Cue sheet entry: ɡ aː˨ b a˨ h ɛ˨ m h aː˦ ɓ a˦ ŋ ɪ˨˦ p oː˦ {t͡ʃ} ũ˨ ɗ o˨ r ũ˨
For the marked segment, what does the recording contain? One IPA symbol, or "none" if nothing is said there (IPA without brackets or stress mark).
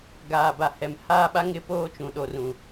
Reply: t͡ʃ